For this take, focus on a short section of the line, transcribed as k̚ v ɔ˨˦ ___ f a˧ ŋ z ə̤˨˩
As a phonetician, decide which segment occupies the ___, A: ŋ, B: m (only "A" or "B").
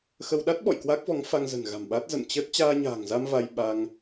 A